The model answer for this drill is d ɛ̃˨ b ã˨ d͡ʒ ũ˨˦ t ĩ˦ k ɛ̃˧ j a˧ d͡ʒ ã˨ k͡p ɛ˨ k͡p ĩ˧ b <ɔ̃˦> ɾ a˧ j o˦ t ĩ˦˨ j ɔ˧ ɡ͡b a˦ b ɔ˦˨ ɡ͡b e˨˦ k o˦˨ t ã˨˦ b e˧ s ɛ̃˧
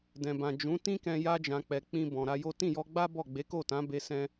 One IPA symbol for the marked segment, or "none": ɔ̃˨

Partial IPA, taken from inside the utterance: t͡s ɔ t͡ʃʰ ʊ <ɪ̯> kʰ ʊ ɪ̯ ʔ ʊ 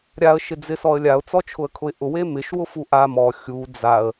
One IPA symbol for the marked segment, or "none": ə̯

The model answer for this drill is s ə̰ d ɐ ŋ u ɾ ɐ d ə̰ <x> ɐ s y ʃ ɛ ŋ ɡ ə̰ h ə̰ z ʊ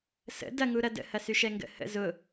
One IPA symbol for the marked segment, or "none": h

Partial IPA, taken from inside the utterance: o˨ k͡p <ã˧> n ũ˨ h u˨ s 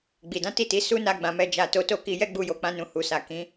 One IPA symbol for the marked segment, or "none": ã˧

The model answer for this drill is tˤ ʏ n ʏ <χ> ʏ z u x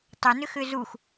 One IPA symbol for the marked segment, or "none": x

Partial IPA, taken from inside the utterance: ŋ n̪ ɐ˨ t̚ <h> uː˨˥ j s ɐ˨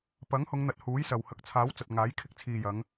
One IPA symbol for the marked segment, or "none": h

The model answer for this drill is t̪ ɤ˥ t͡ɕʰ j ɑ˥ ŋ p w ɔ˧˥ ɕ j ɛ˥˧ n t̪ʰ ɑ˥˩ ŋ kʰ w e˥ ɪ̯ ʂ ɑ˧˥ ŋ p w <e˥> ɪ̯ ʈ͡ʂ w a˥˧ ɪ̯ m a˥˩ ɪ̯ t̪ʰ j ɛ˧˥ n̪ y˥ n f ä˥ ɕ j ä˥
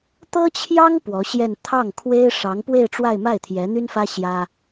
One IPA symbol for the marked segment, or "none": e˥˧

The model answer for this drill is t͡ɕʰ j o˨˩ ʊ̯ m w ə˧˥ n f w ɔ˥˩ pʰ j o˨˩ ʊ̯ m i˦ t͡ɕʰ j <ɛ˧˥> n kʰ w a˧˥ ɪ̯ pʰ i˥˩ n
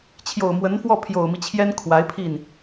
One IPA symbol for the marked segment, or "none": ɛ˥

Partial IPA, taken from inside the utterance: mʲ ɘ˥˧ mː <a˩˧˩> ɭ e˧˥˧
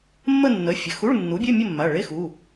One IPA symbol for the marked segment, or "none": a˩˧˩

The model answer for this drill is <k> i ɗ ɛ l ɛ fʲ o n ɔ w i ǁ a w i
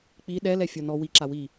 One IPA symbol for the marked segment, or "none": k͡p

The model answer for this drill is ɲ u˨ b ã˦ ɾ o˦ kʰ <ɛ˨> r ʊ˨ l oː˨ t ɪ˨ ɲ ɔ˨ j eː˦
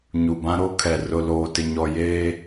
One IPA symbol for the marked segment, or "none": ɛ˨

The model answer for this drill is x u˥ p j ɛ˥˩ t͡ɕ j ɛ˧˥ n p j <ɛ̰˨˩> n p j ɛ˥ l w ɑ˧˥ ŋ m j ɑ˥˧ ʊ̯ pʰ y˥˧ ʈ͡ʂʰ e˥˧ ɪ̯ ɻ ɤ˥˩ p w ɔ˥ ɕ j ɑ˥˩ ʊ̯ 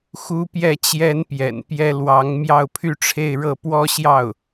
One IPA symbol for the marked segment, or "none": ɛ̰˨˩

